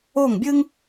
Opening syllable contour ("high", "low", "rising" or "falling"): falling